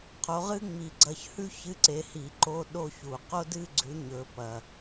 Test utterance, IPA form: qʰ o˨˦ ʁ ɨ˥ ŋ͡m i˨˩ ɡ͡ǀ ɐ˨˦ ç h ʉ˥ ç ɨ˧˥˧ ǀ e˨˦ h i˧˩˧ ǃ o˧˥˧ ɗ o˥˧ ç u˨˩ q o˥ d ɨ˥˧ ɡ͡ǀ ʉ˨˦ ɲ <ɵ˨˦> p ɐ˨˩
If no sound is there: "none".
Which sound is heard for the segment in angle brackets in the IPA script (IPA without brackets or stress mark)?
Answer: ɵ˨˦